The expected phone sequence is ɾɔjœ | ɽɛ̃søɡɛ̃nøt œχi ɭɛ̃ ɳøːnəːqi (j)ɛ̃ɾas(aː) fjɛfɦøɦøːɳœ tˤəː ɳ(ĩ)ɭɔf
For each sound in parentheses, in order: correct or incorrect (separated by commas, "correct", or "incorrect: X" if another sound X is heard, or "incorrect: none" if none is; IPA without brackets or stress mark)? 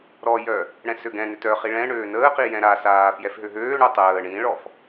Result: correct, correct, correct